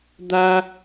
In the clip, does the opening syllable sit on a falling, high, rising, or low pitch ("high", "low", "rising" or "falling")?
high